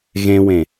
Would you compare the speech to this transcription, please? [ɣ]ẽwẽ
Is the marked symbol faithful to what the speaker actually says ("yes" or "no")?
yes